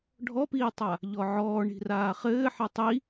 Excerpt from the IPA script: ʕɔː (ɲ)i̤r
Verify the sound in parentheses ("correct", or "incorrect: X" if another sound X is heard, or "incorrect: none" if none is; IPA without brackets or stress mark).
incorrect: ɳ